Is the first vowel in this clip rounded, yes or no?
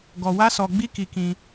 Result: yes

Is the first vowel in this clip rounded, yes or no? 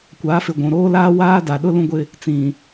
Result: no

